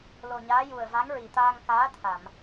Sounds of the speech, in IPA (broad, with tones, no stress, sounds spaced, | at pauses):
l o˨˩ ɲ aː˧˥ j u˨˩ ə̯ v a˧˥ ŋ ɹ i˨˩ t̪ aː˧ ŋ k aː˧˥ t̪ʰ a˨˩˨ m